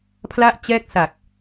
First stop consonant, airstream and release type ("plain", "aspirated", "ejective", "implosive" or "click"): aspirated